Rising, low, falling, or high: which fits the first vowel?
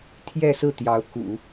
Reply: falling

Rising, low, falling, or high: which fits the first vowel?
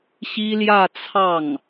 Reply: high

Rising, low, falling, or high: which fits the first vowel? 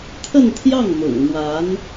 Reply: falling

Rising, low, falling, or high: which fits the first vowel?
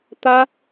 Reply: high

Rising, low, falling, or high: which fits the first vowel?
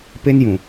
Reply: high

